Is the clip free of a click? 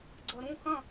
no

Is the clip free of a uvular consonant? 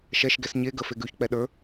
yes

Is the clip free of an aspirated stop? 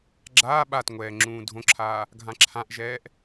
no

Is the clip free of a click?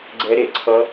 no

